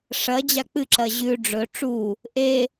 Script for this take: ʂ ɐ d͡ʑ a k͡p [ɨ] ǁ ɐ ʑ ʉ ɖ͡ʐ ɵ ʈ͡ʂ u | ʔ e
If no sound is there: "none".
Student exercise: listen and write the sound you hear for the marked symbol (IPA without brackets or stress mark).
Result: ɨ